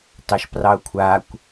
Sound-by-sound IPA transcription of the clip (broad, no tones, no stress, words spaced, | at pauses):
tɑʃprɑʊ̯kʷʰakʷ